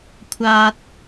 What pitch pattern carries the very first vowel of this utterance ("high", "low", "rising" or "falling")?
low